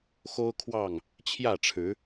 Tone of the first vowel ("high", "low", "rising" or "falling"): high